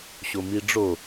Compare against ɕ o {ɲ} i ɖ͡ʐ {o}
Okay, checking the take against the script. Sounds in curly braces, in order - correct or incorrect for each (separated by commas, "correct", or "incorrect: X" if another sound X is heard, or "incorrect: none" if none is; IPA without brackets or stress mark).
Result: incorrect: m, correct